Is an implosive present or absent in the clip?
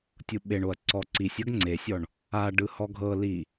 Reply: present